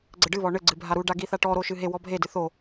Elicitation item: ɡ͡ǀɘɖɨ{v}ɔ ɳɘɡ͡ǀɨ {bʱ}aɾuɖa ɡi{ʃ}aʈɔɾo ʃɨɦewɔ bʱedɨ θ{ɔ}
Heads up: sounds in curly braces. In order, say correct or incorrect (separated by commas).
incorrect, correct, incorrect, incorrect